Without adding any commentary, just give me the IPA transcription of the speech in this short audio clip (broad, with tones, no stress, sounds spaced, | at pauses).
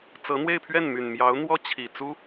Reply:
t͡s ɤ˧˥ n̪ w e˥˧ ɪ̯ pʰ ɥ ɛ˥˩ n m y˨˩ n m j ɑ˧˥ ʊ̯ n̪ w ɔ˥ t͡ɕʰ i˨˩ t͡s u˥